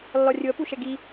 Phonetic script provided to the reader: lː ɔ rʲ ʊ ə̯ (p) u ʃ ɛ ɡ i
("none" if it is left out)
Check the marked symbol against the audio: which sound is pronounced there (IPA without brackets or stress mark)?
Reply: p